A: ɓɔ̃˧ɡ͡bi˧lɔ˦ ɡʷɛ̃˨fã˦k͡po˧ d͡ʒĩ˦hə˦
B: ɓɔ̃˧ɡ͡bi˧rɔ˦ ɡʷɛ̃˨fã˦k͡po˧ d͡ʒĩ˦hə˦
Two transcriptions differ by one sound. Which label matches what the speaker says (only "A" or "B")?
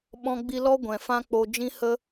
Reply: A